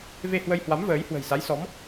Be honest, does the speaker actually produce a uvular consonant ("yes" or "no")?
no